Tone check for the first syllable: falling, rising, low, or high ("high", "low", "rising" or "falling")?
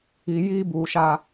low